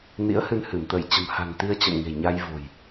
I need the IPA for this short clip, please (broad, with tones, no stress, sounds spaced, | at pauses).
n ḭ˧˥ ə̯ h ɨ˧ n h ɨ˧˩ m t̪ ə˧˩ j t͡ɕ ə̤˨˩ m h a̤˨˩ n t̪ i˧ ə̯ t͡ɕ ə̰˧˨ m ŋ e̤˨˩ ɲ a˧ j v o̤˨˩ j